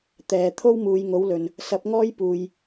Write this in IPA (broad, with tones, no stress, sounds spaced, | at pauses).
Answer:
t̪ ɛː˨ t̪ʰ o˥ w m uː˨˧ j ŋ o˨˥ w l ɵ˨ n | s ɐ˨˥ p̚ ŋ ɔː˥ j p uː˨ j